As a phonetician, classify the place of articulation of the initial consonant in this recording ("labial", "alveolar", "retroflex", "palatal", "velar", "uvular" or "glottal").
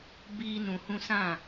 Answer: labial